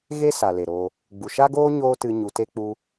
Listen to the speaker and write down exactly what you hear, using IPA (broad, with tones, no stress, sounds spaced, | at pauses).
ɣ e˦ s a˨ l e˨ ɾ oː˧ | ɡ͡b u˨ ʃ a˦ ɡ oː˦ ɲ oː˦ t ɨ˧ ɲ u˧ t e˦ k͡p u˦